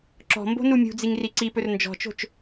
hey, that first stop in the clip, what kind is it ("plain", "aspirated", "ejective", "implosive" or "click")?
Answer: click